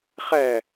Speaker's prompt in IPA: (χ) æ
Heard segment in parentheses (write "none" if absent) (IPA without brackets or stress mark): χ